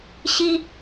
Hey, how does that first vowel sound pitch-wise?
high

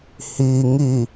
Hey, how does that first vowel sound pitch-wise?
low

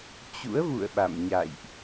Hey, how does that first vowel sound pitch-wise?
rising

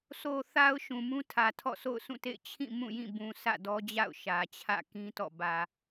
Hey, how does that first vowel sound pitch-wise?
low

